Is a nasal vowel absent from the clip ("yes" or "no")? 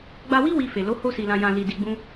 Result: no